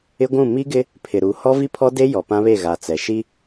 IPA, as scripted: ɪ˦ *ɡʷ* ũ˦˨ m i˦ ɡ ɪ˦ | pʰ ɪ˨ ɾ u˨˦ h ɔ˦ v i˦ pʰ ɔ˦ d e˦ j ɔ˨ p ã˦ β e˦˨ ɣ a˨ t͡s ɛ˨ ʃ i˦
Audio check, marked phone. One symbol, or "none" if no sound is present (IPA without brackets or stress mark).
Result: ɡʷ